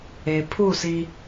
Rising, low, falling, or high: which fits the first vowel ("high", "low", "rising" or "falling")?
low